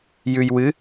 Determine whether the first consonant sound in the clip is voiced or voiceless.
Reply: voiced